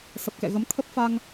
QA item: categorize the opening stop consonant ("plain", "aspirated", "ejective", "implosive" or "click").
plain